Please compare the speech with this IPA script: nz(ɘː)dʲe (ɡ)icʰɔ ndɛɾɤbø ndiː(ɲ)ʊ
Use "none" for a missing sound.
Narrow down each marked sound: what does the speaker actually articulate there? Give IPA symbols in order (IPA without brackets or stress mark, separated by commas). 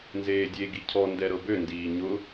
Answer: eː, ɡ, ɲ